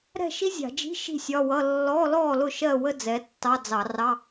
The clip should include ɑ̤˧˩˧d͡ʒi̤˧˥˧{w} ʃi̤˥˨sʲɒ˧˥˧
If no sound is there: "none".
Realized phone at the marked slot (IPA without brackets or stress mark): none